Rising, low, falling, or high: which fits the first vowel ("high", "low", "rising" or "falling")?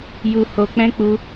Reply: low